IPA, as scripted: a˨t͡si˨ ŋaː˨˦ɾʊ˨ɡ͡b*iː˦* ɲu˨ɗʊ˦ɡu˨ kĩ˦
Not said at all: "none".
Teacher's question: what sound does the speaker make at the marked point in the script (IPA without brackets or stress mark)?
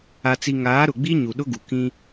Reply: i˦